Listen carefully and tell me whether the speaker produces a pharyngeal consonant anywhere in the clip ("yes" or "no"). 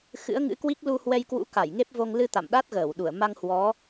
no